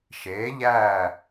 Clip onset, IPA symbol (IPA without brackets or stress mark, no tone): ʃ